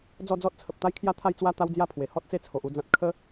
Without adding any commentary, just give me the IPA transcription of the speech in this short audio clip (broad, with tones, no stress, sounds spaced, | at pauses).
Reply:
d͡z ɔ˥˧ d͡z ɔ˦ t̚ t͡sʰ ə˨ p̚ t̪ a˦ j kʰ j a˦ t̪ʰ a˥˧ j t͡s w a˦ t̪ a˦ w d͡z j a˥˧ pʰ w e˨˩ h ɔ˦ t̚ t͡s e˦ t͡sʰ o˨ ʔ u˥˧ d͡z ã˦ t̚ kʰ ə˦